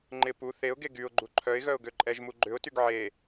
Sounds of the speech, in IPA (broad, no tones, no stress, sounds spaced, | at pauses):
ŋ͡ǃ ɪ p u θ e ʊ̯ ɡ e ɡ y ʊ̯ ɡ͡ǃ u ǃʰ œ ɪ̯ ɣ œ ʊ̯ ɡ ø ǃʼ ɛ ʒ m u ɡ͡ǃ ʏ ʊ̯ t y ɡ ʕ e